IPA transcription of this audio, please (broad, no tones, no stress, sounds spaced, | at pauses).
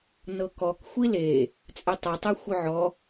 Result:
n ɤ k ɔ k xʷ i l e | t͡sʼ œ tˤ ɤ tˤ e xʷ œ ʕ ɔ